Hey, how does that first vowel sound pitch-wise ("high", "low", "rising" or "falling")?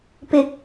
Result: low